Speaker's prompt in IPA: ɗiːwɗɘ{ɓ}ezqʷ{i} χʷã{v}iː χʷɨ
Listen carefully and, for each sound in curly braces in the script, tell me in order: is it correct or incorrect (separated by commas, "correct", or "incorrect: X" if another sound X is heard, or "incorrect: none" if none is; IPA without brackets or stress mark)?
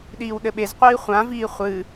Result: correct, incorrect: iː, correct